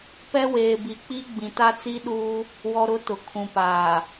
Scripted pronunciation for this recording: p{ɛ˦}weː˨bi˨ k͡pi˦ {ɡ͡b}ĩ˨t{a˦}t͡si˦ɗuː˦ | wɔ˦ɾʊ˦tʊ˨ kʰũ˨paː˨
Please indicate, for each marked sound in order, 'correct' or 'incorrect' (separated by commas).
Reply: correct, correct, correct